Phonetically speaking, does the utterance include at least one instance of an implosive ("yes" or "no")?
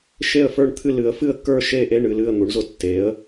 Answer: no